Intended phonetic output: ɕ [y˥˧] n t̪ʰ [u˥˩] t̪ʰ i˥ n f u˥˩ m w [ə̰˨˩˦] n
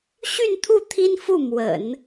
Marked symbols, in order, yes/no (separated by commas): yes, yes, yes